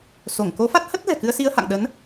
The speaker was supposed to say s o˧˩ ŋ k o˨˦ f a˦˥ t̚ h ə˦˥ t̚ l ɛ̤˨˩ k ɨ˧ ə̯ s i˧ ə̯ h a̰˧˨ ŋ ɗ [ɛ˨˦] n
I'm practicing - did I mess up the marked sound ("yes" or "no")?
yes